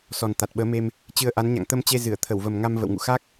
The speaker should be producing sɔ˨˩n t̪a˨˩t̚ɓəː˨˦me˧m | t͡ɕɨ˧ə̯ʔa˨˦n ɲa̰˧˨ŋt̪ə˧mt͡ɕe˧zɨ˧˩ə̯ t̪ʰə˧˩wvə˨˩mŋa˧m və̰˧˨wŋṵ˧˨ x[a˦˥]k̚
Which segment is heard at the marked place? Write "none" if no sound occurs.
a˦˥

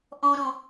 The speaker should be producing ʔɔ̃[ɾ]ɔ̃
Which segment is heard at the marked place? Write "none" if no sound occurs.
ɾ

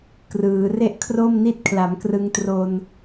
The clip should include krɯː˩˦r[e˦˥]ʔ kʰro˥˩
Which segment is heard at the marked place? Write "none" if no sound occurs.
e˥˩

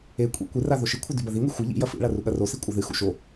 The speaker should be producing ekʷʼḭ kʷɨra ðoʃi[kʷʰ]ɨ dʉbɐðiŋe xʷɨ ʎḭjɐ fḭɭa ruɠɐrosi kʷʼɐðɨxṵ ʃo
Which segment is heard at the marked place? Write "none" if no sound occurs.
kʷʰ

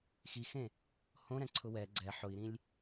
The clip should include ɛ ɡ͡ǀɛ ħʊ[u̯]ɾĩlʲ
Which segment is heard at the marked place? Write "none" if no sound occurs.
i̯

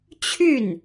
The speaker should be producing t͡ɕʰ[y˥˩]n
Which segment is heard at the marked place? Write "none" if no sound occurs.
y˥˩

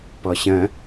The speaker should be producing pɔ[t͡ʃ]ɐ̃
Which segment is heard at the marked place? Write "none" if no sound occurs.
ɕ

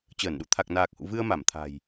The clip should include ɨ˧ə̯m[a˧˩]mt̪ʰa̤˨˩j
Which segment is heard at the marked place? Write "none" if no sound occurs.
a˧˩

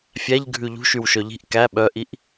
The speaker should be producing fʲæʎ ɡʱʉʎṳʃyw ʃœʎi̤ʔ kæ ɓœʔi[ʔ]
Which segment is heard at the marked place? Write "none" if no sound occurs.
ʔ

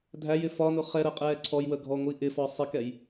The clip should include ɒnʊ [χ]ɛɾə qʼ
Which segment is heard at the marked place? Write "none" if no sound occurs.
χ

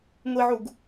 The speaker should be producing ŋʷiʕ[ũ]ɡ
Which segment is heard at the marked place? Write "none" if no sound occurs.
u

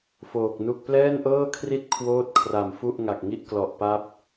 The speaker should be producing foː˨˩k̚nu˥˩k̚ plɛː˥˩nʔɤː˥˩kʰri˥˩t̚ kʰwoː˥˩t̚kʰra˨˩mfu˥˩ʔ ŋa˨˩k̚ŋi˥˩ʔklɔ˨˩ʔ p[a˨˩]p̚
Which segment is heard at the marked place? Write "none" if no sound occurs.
a˥˩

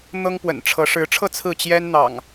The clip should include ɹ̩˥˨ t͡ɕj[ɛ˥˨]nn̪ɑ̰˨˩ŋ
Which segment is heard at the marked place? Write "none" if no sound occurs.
ɛ˦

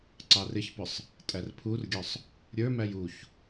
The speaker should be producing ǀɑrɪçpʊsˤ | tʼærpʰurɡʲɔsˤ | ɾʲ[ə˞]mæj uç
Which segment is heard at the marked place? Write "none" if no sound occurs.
ə˞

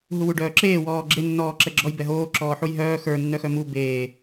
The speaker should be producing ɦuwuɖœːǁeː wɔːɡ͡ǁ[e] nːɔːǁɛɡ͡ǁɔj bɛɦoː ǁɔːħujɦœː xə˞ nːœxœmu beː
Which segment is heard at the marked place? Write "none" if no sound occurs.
e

